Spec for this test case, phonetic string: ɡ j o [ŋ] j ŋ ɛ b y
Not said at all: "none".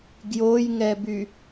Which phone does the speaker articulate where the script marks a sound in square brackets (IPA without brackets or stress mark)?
none